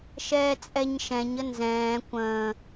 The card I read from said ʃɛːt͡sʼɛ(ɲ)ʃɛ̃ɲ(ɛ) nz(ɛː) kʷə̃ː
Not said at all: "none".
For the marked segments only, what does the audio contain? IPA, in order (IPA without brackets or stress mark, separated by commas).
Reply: ɲ, ə, ɛ̃ː